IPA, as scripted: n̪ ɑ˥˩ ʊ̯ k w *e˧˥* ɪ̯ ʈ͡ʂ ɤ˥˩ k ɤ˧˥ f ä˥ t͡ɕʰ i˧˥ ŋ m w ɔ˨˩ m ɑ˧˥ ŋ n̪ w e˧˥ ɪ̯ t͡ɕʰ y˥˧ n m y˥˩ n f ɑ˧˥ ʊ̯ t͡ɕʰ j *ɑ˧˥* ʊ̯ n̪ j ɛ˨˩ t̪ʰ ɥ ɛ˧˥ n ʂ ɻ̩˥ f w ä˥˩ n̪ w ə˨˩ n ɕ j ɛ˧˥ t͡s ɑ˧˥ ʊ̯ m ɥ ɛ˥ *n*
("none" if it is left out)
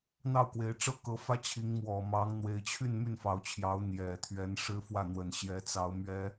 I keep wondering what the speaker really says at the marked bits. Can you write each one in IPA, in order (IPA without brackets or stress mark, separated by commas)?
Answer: e˧˥, ɑ˧˥, none